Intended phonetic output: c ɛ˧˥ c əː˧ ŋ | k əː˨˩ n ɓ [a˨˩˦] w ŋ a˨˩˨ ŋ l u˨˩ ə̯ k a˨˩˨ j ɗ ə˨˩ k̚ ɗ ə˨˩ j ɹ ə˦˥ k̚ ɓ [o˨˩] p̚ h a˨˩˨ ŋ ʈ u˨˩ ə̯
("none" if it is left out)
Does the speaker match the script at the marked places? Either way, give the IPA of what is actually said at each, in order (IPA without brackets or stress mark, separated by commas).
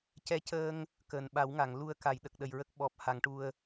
a˨˩˦, ɔ˨˩